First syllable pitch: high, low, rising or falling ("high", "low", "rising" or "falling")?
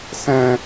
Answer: high